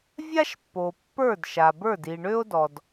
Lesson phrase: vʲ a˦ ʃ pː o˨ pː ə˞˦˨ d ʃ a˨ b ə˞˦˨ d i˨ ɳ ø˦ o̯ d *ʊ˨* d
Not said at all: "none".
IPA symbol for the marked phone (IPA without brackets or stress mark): ɔ˨